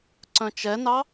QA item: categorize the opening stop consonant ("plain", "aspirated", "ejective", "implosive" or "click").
click